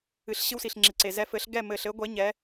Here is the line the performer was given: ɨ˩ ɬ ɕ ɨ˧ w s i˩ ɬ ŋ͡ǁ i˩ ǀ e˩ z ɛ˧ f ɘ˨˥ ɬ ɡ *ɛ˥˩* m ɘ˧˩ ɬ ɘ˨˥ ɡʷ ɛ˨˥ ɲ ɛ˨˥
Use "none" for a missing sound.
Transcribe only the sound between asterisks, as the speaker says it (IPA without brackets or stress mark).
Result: ɛ˥˩